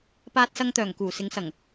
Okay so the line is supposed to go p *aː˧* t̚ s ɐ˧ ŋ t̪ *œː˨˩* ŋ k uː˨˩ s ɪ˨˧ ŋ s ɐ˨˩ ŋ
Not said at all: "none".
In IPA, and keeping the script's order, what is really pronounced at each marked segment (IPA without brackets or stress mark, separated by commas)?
aː˧, œː˨˩